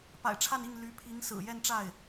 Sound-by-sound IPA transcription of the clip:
p a̰˨˩ ɪ̯ ʈ͡ʂʰ a˥˧ n i˥˩ ŋ l y˧˥ pʰ i˧˥ ŋ s ɹ̩˨˩ j ɛ˥˧ n ʈ͡ʂ a˥˩ ɪ̯

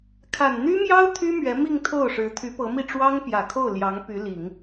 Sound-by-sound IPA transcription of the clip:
kʰ a˨˩ n n̪ y˥ m j ɑ˥ ʊ̯ t̪ʰ y˥ m ɥ ɛ˧˥ m i˥˧ ŋ t̪ʰ o˥˩ ʊ̯ ʂ ɻ̩˧˥ t̪ʰ y˧˥ p ɤ˧˥ m i˥˩ ʈ͡ʂ w ɑ˥ ŋ p j ä˨˩ kʰ o˥˩ ʊ̯ l j ɑ˧˥ ŋ p y˧˥ l i˨˩˦ ŋ

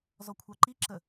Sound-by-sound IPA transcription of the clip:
z ɔ kʷʰ ɑ ǃ i ǁ ə

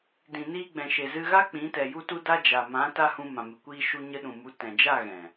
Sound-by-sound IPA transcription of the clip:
d ĩ˨ n iː˧ ɡ͡b ɛ̃˨ ʃ e˨ z ɨ˧ ɣ a˦ k͡p ĩ˨˦ t ɛ˨ j u˧ t u˧ d a˧ d͡ʒ a˨ m ã˨˦ t a˧ h ũ˧ m ã˨ m ɨ˨ kʷ iː˧ ʃ u˧ ɲ ə˧ ɗ ũ˨ m u˨˦ t ɛ̃˨ d͡ʒ a˦˨ ɣ ɛ̃˨

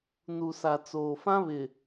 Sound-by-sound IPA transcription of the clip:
n u˨ s a˨ t͡s oː˨ f ã˦ β ɪ˨

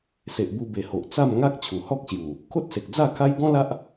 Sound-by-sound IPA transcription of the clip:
s e˨ ʔ b u˧ b e˨˩ h o˨ ʔ t͡s a˥˧ m ŋ a˦ k̚ t͡ɕʰ u˨˩ h ɔ˦ k̚ ɕ j u˨˩ | kʰ o˦ t̚ s e˨ k̚ d͡z a˥˧ kʰ a˦ j ɡ ɔ̃˦ l a˦ ʔ

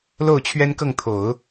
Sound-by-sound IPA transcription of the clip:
l o˥˩ ʊ̯ t͡ɕʰ ɥ ɛ˥ n k ɤ˥˩ ŋ t̪ʰ o˨˩˦ ʊ̯

